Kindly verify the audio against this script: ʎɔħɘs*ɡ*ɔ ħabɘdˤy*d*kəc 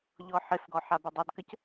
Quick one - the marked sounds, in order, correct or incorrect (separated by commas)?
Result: correct, correct